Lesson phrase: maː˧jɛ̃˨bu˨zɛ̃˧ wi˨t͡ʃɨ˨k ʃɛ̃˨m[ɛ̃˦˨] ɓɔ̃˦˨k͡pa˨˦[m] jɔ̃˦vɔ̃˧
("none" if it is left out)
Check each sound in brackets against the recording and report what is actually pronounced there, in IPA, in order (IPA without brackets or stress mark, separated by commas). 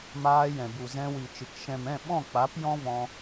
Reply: ɛ̃˦˨, p